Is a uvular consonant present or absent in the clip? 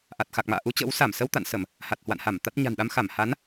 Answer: absent